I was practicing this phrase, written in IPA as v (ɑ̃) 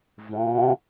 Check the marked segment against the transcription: incorrect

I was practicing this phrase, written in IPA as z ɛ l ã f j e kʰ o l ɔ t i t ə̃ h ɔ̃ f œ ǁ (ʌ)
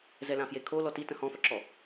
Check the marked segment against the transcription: incorrect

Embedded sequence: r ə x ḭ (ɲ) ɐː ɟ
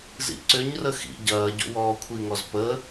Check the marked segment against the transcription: incorrect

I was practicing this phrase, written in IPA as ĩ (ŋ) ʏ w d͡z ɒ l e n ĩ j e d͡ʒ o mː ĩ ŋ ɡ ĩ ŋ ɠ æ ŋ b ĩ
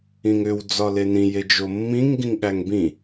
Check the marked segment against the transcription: correct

